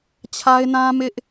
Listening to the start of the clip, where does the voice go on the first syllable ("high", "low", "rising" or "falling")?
high